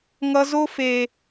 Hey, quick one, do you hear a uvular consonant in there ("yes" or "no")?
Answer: no